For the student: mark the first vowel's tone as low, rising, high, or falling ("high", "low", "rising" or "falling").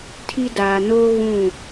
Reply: high